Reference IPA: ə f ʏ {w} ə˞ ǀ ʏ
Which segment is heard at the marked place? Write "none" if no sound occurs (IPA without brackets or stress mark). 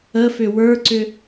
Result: w